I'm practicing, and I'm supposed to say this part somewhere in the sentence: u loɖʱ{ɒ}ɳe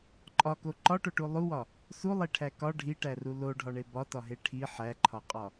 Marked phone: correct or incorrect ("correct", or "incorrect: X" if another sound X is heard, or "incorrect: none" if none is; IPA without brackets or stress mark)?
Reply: correct